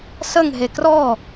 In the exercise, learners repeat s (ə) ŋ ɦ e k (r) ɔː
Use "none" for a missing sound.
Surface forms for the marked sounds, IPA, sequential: ə, r

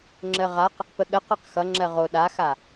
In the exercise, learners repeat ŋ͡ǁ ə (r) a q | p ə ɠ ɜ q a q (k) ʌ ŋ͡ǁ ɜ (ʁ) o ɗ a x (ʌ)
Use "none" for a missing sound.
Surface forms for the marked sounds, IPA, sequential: ʁ, x, ʁ, a

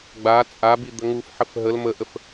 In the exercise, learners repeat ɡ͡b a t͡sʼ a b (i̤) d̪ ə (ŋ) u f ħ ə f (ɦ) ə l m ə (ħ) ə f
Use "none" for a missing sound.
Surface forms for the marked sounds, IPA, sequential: i, ŋ, ɦ, ʔ

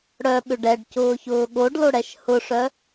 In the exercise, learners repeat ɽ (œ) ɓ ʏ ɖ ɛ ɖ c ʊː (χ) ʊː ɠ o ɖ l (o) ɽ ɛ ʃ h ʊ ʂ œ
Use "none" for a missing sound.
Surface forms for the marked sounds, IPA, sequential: œ, ç, o

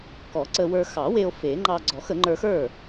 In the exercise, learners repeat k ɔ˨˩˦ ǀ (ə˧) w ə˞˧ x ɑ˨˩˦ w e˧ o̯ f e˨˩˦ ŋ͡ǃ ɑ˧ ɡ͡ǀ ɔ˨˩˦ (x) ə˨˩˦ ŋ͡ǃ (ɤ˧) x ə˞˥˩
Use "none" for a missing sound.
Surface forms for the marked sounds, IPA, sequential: ə˧, x, ə˞˧

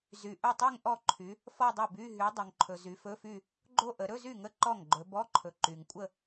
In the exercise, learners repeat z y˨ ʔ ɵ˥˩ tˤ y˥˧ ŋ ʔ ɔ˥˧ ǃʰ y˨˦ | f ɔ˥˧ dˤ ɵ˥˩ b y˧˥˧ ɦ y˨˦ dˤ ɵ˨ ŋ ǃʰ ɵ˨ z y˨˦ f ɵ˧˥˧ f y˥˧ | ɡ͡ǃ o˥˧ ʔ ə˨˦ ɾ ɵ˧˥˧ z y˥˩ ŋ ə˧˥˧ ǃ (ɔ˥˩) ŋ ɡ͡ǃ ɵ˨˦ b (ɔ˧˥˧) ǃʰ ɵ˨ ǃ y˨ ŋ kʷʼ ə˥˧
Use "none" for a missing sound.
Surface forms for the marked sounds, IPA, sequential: ɔ˥˩, ɔ˧˥˧

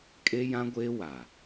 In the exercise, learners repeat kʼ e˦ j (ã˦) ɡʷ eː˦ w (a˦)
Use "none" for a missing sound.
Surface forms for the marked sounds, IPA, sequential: ã˦, a˨

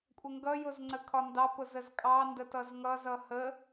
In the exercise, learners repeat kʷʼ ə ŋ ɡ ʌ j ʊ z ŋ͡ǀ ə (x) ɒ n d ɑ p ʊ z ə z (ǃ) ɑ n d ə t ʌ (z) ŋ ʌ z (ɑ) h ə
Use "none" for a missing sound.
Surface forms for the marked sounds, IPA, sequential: kʰ, kʼ, z, ʌ

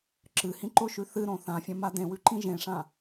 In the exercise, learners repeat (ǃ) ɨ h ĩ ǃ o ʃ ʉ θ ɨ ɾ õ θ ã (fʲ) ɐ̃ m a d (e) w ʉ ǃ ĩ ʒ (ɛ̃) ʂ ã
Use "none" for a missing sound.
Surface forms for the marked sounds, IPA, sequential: ǁ, fʲ, ẽ, ẽ

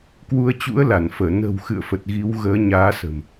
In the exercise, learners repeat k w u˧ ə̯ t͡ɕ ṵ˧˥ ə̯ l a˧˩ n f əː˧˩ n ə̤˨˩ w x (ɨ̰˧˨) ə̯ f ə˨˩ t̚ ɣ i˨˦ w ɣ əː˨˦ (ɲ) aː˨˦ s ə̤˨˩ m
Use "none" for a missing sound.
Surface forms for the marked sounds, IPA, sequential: ɨ̰˧˨, ɲ

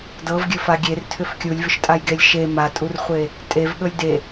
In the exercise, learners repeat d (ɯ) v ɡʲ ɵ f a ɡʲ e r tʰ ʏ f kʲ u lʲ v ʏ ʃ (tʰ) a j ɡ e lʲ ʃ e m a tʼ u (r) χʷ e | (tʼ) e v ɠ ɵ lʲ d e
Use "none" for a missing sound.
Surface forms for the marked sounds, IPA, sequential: ɤ, tʼ, r, tʼ

